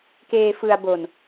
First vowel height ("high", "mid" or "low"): mid